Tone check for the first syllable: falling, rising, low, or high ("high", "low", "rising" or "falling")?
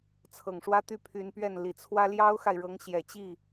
low